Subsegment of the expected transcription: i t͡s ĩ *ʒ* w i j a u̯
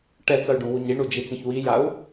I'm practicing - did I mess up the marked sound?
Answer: yes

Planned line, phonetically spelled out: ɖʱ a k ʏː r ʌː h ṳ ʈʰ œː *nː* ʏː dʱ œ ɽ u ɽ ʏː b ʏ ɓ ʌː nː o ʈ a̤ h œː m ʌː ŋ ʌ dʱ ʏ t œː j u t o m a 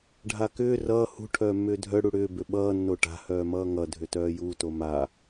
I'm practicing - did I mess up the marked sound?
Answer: yes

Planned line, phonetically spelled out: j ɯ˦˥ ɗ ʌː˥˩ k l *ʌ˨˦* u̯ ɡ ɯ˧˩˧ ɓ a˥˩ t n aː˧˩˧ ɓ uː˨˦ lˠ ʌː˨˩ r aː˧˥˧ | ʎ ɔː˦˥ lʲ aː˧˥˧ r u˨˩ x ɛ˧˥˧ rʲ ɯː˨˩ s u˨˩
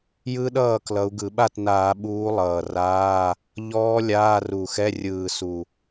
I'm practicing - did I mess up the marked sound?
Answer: no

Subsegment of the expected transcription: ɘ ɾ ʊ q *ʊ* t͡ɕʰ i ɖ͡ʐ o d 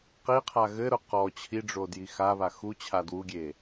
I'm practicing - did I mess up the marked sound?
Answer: yes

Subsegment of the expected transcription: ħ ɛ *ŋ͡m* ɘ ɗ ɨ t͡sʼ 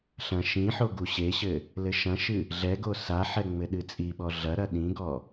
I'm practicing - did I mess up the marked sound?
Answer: no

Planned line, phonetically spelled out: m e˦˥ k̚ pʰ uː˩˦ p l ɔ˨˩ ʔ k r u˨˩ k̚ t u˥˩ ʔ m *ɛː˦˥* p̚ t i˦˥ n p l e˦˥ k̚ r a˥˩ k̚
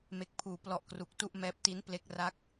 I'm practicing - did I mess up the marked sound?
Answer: no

